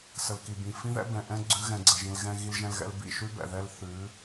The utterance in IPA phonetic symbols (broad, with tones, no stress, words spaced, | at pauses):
sə˨lki˨bĩ˨ fĩ˦ðɛ̰˦ bɛ̃˨ʔɛ̃˦ ɡ͡ǀʉ˦ɣɛ̃˧ɡ͡ǀə˧ʒĩ˧l ɣɛ̃˧ɣi˧lʒɛ̃˧lɣɛ̰˧l bḭ˦˨ʃʉ˦bɛ̰˨ ðɛ˦l θʉ˨˦